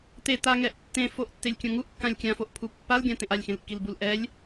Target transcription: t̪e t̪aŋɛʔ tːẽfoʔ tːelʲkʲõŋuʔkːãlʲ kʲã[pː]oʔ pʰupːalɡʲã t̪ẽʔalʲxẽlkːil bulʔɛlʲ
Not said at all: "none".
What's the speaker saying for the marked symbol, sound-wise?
f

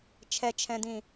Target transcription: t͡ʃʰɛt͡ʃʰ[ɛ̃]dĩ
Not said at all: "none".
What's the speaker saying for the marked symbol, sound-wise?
ɛ̃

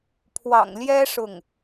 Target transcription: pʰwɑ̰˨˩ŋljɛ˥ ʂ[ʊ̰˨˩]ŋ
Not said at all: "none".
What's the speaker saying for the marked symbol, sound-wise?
ʊ˥˩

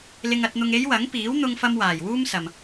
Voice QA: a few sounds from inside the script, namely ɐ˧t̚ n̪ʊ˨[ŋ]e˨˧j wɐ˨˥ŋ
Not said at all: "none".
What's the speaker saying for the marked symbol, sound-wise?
ŋ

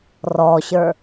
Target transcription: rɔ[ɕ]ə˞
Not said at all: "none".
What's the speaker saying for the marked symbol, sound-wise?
ɕ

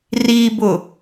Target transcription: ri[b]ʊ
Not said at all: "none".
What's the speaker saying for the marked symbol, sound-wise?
b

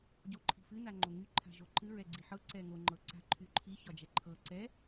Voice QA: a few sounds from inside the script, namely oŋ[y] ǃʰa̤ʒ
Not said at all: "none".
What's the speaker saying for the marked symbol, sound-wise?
y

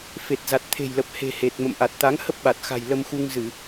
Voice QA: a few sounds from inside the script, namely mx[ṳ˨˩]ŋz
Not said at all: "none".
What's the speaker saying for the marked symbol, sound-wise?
u˧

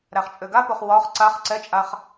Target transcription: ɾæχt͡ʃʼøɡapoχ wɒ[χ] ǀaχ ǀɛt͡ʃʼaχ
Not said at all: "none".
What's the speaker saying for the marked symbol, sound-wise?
χ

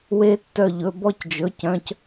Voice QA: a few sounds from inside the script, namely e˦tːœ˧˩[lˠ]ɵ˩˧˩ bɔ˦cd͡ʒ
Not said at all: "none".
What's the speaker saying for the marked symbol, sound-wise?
ʎ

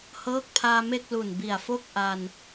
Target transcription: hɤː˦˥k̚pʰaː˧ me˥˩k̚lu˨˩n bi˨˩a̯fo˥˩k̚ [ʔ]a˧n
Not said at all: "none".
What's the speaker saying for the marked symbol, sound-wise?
ʔ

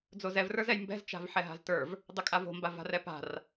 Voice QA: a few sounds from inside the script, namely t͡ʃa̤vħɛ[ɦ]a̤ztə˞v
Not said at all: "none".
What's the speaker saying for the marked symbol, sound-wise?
ɦ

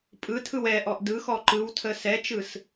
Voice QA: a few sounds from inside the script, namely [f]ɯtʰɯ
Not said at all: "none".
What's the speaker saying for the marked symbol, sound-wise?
pʼ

